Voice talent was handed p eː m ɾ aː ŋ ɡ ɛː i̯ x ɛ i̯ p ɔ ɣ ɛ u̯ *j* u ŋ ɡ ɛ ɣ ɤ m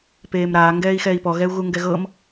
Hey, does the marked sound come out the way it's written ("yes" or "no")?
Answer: no